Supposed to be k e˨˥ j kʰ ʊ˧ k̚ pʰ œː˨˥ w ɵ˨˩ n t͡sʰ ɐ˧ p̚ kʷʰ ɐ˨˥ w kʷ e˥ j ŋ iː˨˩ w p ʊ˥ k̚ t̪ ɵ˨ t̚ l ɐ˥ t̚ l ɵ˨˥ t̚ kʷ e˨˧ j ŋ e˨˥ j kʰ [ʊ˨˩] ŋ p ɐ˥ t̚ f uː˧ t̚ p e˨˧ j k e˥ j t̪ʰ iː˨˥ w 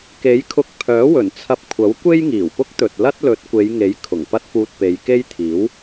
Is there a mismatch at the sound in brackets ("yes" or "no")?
no